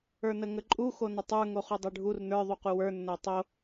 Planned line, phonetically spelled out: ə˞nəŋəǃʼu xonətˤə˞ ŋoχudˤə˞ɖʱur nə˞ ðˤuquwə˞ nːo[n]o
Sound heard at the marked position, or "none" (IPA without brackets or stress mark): tˤ